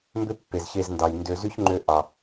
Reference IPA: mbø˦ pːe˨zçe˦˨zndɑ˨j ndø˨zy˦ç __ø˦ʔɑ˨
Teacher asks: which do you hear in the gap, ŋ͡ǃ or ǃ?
ŋ͡ǃ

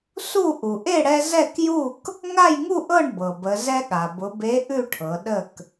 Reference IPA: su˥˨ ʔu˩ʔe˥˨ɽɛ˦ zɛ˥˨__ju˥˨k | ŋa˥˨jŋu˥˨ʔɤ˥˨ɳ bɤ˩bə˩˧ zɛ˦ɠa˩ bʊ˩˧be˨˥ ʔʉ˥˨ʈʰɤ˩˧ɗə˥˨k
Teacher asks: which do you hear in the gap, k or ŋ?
k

